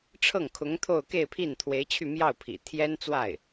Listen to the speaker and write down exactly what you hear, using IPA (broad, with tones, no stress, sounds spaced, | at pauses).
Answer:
ʈ͡ʂʰ ɤ˥˩ ŋ kʰ ʊ˧˥ ŋ t̪ʰ o˥˧ ʊ̯ k e˥˧ ɪ̯ pʰ i˥˩ n t̪ʰ w e˧˥ ɪ̯ t͡ɕʰ y˥˧ m j ɑ˥˩ ʊ̯ pʰ ḭ˨˩ t̪ʰ j ɛ˥ n t͡s w a˥˩ ɪ̯